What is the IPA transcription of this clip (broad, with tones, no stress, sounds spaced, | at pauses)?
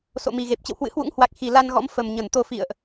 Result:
s o̰˧˨ m i˨˩ ɣ e˨˩ p̚ t͡ɕ ə̰˧˨ w h w ɨ̰˧˥ h w ṵ˧˥ ŋ h w a˨˩ k̚ x i˧˩ l a˧ n ɣ ɔ̰˧˥ m f ə˨˩ m ɲ ə˧˩ n t̪ o˧ f ḭ˧˨ ə̯ ʔ